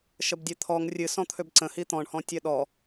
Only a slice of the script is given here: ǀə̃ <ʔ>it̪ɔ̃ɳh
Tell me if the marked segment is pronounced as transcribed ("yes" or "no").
no